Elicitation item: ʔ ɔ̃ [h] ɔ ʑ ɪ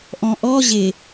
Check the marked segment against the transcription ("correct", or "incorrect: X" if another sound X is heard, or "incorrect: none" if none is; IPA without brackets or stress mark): incorrect: ʔ